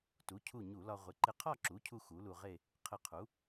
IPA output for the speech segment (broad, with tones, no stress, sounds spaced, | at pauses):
t u˩˥ cʰ u˧˩ ɲ u˧˩˧ l ɒ˧ ʁʷ ɪ˩˥ ǃ ɪ˧ qʰ ɒ˥˧ ǁ u˩˥ cʰ u˧ x u˩˥ l u˧ ʁ e˥˧ | qʰ ɪ˧˩ qʰ u˩˥